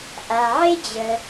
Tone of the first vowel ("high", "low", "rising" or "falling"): low